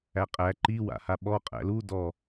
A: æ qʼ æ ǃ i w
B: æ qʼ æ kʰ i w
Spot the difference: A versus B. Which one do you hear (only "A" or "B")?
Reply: A